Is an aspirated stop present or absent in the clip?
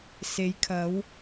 present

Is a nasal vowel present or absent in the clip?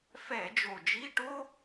absent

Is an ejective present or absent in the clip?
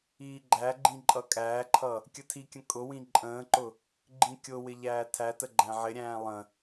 present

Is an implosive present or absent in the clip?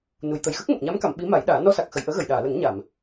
present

